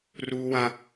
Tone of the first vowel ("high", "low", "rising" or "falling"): high